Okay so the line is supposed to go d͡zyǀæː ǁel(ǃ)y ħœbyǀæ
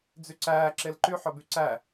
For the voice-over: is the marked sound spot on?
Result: yes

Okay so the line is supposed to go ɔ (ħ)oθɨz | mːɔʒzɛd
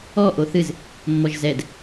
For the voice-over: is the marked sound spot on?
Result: no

